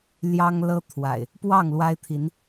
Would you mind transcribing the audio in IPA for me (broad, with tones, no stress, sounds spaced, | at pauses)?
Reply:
l j ɑ˦ ŋ l ɤ˦ t̪ʰ w a̰˨˩ ɪ̯ | p w ɑ˥˨ ŋ l w a˦ ɪ̯ t̪ʰ i˨˦ n